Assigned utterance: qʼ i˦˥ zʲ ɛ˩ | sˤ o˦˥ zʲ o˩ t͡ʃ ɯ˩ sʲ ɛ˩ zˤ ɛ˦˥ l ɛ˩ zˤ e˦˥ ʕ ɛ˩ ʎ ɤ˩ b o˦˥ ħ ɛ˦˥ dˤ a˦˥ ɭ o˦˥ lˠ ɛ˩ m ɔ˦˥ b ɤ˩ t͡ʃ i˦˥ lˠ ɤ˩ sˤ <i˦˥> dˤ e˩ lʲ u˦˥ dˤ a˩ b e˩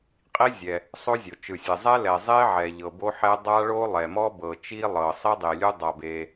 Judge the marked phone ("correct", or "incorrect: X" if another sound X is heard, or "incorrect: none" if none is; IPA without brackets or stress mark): correct